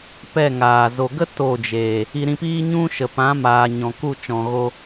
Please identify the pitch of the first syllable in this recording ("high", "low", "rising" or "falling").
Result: falling